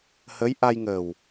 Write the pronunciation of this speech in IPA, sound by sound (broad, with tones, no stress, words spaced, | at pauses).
həː˧˥jʔa˧jŋəː˨˩w